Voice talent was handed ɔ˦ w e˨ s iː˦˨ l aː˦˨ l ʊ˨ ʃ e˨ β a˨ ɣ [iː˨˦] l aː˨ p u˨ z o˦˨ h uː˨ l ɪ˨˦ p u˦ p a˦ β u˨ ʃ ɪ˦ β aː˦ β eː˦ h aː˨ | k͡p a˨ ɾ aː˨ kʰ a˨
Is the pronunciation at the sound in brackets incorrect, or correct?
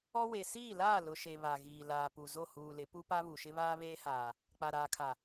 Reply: incorrect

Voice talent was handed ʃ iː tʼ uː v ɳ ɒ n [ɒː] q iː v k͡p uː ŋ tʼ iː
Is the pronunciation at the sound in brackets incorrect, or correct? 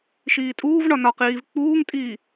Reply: incorrect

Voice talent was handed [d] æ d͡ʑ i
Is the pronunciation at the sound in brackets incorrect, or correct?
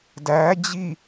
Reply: correct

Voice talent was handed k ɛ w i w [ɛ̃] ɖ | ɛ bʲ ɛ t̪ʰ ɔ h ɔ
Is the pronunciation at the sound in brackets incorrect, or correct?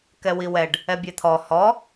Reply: incorrect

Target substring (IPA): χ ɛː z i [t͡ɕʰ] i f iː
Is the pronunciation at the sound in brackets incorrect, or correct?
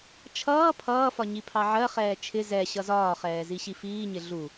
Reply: incorrect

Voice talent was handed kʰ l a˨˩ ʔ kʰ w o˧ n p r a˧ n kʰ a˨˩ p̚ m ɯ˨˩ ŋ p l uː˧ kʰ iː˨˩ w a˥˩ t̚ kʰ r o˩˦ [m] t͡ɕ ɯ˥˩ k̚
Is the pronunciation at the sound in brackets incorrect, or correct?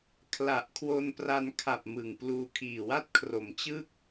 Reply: correct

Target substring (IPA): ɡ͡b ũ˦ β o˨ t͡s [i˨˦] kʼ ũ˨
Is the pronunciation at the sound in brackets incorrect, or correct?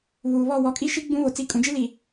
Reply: correct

